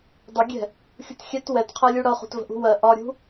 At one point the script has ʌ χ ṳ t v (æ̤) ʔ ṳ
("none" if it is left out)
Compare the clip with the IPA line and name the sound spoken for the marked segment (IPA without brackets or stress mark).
ə̤